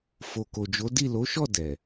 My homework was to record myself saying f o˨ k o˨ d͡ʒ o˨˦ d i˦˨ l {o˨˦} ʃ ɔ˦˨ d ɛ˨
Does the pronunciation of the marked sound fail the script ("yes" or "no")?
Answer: no